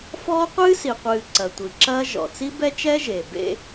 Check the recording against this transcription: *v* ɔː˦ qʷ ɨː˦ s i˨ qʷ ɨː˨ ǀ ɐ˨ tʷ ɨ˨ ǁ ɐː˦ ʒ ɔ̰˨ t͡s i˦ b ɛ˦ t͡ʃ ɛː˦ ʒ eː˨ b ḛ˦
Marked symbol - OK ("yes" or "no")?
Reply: no